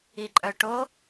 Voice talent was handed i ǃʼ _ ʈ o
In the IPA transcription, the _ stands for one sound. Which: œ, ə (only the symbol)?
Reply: œ